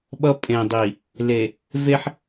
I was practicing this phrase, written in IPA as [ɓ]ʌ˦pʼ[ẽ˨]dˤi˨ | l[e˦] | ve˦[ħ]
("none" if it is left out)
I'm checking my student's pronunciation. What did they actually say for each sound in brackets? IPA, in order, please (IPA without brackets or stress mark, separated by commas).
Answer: ɓ, ẽ˨, e˨, ħ